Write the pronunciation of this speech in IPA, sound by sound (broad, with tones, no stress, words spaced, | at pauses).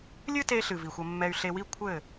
lʲɨ˦te˧ɬɨ˨ vi˨xʷɐ˧mːɛ˧y̯ ɬe˧wi˦ kʷʰɘ˦˨